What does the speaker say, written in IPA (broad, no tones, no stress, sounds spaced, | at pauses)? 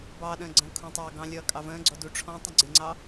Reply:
b ɑː ɗ ə̃ː ɡ͡ǀ ə̃ː kʰ ũ tˤ ɑː ɡ ɑ̃ lʲ ʌː kʼ ɑ v ə̃ː ɡ͡ǀ ɔ d u ʈ͡ʂʰ ɔ̃ tˤ ə̃ ɡ͡ǀ ɪ ŋ͡ǀ ɑ